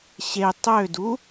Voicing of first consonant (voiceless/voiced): voiceless